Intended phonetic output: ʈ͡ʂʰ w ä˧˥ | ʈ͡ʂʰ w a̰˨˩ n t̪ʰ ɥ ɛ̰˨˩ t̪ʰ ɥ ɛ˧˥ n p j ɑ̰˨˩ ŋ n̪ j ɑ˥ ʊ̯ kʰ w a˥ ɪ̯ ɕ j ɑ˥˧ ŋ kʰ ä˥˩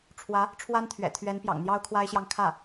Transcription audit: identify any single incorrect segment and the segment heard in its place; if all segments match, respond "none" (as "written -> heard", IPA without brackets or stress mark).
a̰˨˩ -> a˥